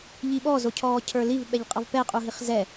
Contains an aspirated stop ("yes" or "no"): yes